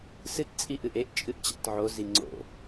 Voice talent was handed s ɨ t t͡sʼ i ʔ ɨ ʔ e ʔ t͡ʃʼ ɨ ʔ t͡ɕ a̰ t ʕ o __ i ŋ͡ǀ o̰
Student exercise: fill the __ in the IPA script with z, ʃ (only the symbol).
z